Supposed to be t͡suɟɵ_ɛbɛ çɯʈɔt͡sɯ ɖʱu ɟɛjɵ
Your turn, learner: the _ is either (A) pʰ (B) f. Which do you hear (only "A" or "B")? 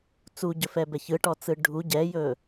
B